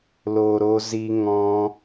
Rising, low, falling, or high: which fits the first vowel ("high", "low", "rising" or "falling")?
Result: low